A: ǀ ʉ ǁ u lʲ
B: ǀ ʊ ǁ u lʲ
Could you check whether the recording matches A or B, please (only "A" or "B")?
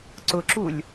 B